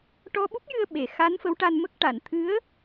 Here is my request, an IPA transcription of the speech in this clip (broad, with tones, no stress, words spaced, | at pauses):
ʈɔ˧ɓu˦˥p̚jɨ˧ə̯ ɓe˨˩ xa˧˥nfə˧˥wʈa˧nmə˦˥k̚ ʈa˨˩˨nt̪ʰɨ˧˥ə̯